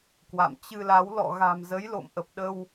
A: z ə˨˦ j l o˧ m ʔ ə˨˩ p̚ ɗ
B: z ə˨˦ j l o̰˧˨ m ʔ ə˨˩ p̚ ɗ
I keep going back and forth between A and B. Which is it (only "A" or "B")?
B